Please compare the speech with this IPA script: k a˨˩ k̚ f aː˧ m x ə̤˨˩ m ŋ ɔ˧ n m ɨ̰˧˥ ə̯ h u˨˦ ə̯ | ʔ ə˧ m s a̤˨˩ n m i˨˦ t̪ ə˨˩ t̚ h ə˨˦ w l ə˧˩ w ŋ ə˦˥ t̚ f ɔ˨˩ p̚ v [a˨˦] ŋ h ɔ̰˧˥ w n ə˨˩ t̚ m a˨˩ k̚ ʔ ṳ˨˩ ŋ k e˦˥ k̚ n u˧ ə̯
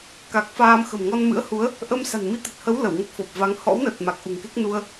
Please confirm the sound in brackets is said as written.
yes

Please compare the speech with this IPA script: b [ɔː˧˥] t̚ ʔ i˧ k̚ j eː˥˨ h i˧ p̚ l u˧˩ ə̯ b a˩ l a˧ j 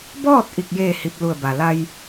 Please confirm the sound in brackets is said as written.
no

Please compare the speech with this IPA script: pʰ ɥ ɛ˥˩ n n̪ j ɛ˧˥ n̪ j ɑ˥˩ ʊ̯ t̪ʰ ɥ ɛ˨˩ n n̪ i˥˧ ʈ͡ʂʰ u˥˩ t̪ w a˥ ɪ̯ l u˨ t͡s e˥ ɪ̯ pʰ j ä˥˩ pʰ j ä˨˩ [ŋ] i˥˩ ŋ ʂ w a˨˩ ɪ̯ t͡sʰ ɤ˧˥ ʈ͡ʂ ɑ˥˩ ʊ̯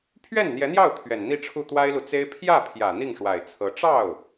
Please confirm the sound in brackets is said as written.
no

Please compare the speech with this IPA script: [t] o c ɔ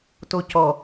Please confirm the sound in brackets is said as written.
yes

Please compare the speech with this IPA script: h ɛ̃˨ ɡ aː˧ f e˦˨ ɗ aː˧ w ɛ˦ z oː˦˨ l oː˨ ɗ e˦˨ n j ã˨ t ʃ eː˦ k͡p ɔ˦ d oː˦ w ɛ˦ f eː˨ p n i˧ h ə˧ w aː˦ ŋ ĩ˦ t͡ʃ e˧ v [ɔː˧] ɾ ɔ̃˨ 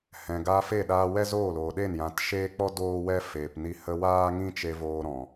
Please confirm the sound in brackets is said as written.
no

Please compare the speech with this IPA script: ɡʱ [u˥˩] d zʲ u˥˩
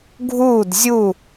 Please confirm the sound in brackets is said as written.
no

